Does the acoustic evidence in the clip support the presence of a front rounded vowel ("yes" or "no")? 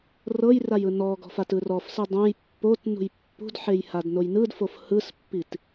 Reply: no